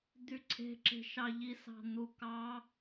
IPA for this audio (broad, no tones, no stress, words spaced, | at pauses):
d̪yǀʰe̤ǁe̤ʃɑ ʎisɑ̤n̪ukɑ